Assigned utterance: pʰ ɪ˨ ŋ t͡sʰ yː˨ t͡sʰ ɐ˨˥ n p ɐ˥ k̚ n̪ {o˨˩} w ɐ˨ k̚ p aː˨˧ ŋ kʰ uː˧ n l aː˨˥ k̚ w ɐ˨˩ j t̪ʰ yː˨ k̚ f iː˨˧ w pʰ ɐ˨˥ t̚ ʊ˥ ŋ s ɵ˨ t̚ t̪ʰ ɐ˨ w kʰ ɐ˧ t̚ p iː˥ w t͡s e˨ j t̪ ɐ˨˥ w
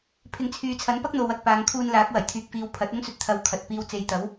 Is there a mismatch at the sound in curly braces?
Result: yes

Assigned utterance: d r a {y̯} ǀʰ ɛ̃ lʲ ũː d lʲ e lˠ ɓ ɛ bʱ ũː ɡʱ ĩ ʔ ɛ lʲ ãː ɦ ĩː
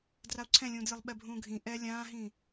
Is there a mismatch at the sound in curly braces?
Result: yes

